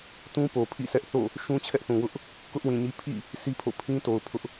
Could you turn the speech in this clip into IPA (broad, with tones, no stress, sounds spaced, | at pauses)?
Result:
t ũ˦ p o˨ pʰ ḭ˦˨ s ɛ˦ ʔ θ o̰˦˨ | ʃ ũ˦ t͡ɕʰ ɛ˦ ʔ θ ũ˨ w ʊ˦ ʔ | k ʊ˦ ʔ w ĩ˨ ɲ i˦ pʰ ḭ˦˨ | sʰ i˦ pʰ o̰˦˨ pʰ ĩ˦ t o˨ ʊ̯ pʰ ʊ˦ ʔ